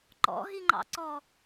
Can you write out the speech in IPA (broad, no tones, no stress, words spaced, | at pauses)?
ǃɔ̰ɦiŋ͡ǃɑ̰ ǀɔ